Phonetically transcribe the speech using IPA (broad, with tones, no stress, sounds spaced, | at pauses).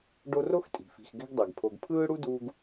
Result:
ɖ o˦ r o˥ x tʼ i̤˩ f i̤˨ x ɡ ɛ̤˦ ɡ dˤ ɛ˩ ɡ pʰ o˨ ɡ pʰ ɯː˥ ɽ u˥ d uː˦ ɡ